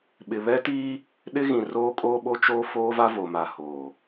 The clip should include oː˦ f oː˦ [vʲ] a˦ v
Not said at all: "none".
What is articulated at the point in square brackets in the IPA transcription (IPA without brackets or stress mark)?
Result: v